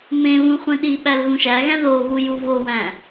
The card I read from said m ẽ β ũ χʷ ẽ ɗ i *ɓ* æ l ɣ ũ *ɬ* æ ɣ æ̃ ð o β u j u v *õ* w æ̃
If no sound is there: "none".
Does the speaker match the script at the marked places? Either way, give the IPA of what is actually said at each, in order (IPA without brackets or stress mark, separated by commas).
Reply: ɓ, ʃ, o